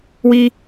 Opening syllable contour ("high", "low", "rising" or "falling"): high